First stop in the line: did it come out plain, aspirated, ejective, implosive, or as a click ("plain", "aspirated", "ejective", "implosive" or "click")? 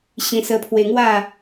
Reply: aspirated